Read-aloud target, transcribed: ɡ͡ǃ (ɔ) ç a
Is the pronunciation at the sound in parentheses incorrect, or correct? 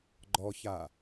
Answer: correct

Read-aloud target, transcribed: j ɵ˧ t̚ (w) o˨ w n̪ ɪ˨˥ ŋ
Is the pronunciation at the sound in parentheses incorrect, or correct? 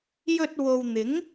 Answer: correct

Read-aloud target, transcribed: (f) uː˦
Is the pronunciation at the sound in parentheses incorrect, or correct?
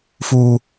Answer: correct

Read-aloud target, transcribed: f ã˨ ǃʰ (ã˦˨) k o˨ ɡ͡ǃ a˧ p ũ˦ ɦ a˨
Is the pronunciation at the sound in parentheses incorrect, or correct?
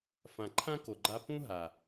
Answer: incorrect: ã˦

